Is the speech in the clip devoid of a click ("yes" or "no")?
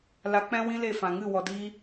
yes